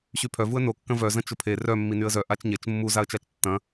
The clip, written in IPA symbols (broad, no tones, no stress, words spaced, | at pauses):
ɕypʰœvuə̯ nokːɐ̃ vœzɐ̃ t͡ʃʊpʰe rœ mːinyə̯zœ ʔat͡ʃɲet͡ʃ mːuzaə̯t͡ʃat͡ʃ tːɐ̃